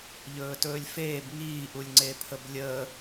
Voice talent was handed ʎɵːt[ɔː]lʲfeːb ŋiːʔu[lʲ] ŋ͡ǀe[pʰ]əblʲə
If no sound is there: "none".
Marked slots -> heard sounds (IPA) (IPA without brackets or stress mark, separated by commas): ɵː, lʲ, pʰ